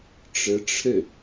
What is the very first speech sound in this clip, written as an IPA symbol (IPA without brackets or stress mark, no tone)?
ʈ͡ʂ